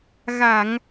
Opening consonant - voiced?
yes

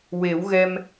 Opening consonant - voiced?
yes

